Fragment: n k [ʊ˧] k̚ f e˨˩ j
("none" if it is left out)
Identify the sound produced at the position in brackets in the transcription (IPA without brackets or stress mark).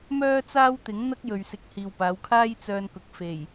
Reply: ʊ˨